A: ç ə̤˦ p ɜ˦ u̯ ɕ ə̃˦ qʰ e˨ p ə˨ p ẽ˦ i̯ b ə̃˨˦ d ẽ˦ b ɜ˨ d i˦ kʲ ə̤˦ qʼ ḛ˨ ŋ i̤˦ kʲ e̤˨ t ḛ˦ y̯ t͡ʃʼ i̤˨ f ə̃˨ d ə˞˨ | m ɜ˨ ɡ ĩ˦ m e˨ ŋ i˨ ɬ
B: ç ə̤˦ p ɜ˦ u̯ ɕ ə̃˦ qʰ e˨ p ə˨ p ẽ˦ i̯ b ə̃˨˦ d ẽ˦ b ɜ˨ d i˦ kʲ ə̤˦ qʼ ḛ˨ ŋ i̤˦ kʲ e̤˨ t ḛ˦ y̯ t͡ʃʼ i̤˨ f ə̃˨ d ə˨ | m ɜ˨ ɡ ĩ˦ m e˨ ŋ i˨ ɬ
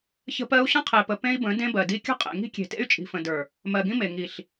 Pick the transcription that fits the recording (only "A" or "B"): A